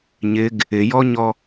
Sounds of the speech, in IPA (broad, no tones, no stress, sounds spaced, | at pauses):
ɲ ɪ ɡ | ɪ j ɔ ɲ ɔ